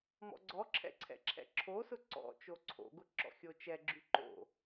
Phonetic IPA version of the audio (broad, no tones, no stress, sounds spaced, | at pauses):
m ɔ̰ ɡ͡ǀ ɔ ǁʰ ɛ̰ ǀʰ ɛ̰ ǁʰ ɛ̰ ǁʰ o s ʊ ǀ ɔ̰ t͡ʃ o ǀʰ o̰ ɡ ʊ ǁ ɔ̰ xʲ o t͡ʃ ɛ ɡ͡ǁ y ǃ o̰